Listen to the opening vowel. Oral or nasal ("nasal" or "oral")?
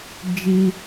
oral